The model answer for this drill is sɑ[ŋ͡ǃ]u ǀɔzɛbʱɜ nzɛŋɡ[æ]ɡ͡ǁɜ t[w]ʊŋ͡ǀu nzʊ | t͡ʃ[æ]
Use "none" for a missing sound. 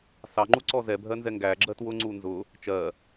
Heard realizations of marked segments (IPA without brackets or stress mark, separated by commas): ŋ͡ǃ, æ, w, ɜ